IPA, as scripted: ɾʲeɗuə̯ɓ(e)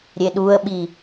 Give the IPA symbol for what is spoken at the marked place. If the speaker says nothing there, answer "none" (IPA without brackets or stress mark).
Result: i